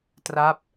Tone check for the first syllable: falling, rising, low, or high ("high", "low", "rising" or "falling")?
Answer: falling